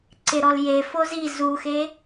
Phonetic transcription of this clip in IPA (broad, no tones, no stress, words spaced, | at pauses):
ǀɪɾɔl jefo zi zuxe